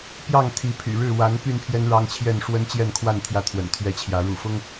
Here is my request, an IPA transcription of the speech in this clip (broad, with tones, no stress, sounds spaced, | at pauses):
p j ɑ˥˨ ŋ t̪ʰ i˨˦ pʰ y̰˨˩ ɻ ɻ̩˥˨ w a˨˦ n p y˧ n pʰ j ɛ˦ n ɻ ɑ˦ ŋ t͡ɕʰ j ɛ˥˨ n ʂ w ə˦ n t͡ɕ j ɛ˥˨ n kʰ w a˥˨ n t̪ʰ j ä˥˨ t̪ʰ w ə̰˨˩ n t̪ʰ ɥ ɛ˦ t͡ɕʰ j ä˨˦ ɻ ṵ˨˩ f ʊ˦ ŋ